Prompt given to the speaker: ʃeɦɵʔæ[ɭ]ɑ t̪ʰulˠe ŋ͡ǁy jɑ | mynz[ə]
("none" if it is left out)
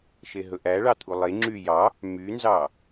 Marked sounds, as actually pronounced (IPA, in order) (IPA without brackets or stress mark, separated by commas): ɭ, ɑ